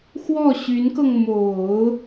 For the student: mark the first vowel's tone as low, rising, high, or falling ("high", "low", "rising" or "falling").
falling